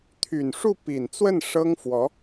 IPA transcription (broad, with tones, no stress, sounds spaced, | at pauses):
t̪ʰ y˨˩ n ʂ u˥˩ p i˨˩ n t͡s w ə˥˩ n ʂ ɤ˥ ŋ f w ɔ˧˥